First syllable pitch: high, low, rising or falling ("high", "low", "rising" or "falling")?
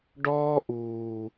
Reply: high